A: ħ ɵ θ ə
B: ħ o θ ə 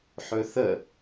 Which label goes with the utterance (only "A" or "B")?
A